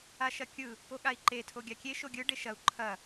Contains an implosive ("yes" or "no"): yes